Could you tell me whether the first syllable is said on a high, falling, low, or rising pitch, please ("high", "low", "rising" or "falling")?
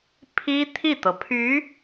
high